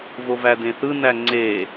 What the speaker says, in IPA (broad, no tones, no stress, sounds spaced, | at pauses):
v o v æ d ẽ θ ɯ n æ ŋ͡ǀ e